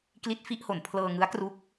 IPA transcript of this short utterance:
k l i˦˥ t̚ f i˦˥ ʔ h o˩˦ n pʰ l ɤː˧ ŋ ɯ˦˥ a̯ k r u˦˥ k̚

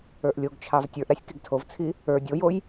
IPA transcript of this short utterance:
ə˞ ʔ lʲ o ɡ t͡ʃʰ ɑ v tʲ ə˞ ʔ ɾ a sʲ k i ɡ tʰ o v t͡sʰ i | ə˞ dʲ o j o j

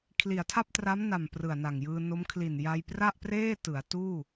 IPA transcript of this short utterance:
kʰ l i˩˦ a̯ tʰ a˥˩ p̚ t r a˦˥ m n a˨˩ m p r ɯ˨˩ a̯ n a˨˩ ŋ j ɯː˧ n o˦˥ m kʰ l i˨˩ n j a˧ j p r a˥˩ ʔ p r eː˥˩ t ɯ˩˦ a̯ t uː˥˩

